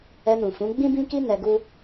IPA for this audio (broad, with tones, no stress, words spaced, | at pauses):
ɛ˧nũ˨fũ˨˦ ɡ͡bĩ˦bĩ˦ki˦ nɛ˧ɡu˦